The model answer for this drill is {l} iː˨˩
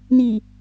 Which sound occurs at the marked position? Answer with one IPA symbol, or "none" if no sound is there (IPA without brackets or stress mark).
n